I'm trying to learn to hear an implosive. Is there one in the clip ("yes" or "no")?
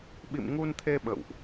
yes